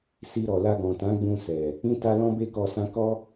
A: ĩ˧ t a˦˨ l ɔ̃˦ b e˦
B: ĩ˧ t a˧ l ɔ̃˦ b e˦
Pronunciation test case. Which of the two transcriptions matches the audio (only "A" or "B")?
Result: B